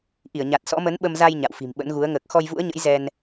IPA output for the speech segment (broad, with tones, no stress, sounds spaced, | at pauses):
ʔ i˧˩ ə̯ ɲ a˨˩ t̚ s ɔ̰˧˥ m ə˨˦ n ɓ ə˧ m z a˧ j ɲ a̰˧˨ w f i̤˨˩ m ɓ ə̰˧˥ n ɣ u˨˦ ə̯ ŋ əː˨˩ k̚ x ɔ˧ j v ṵ˧˥ ə̯ ɲ ə̰˧˥ j z ɛ˧ n